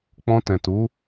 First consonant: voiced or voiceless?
voiceless